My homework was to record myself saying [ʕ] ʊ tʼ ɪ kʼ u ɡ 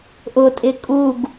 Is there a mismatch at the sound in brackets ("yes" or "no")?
yes